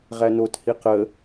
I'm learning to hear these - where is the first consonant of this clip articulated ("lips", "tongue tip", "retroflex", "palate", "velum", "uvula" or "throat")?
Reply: uvula